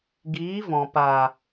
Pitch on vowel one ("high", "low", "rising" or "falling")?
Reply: rising